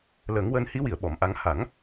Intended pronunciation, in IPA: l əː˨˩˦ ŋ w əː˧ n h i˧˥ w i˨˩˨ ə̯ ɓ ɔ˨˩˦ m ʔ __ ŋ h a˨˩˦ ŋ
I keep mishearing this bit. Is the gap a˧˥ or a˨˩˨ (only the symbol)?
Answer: a˧˥